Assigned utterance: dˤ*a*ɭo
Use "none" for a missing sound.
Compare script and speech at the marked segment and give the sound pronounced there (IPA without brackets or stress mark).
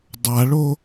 a